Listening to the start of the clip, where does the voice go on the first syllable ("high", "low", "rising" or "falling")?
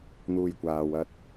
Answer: low